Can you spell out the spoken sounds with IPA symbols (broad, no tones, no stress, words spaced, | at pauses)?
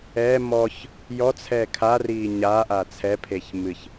ɛ mɔç | jɔt͡sʰɛː kʰariː ɲaʔa t͡sʰɛpʰeç mɨç